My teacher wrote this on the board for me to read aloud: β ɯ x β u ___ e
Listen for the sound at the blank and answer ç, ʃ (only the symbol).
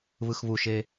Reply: ʃ